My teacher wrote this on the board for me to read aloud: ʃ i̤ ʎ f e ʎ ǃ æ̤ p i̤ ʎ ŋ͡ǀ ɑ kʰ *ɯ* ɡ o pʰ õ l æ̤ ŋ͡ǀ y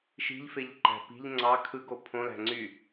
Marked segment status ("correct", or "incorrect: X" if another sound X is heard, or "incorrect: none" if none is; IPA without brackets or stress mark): correct